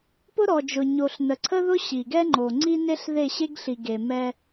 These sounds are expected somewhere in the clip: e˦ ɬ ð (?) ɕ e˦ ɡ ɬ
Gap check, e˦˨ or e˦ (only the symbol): e˦˨